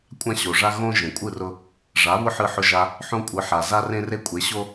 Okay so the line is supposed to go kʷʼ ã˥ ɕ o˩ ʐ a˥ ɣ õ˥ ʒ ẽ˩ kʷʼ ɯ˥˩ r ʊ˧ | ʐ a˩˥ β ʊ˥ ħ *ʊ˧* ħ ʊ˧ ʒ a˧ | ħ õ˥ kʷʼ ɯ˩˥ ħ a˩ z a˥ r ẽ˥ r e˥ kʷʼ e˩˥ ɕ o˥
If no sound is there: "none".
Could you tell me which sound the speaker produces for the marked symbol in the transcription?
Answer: ɯ˧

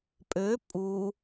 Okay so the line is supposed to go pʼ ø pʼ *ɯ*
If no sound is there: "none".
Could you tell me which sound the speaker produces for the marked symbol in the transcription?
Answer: u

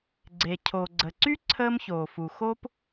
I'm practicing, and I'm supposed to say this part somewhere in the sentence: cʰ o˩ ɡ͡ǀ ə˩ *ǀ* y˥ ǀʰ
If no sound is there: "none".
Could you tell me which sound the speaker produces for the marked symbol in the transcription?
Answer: ǀ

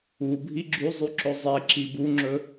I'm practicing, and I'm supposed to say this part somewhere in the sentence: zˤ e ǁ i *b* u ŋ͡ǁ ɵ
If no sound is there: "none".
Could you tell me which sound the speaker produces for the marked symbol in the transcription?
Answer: b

